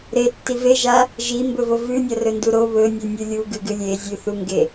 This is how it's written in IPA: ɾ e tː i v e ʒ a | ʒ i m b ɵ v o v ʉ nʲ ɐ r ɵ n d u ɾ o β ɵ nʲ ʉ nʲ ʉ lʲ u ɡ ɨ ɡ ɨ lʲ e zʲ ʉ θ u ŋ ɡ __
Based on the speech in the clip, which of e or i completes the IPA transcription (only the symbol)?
e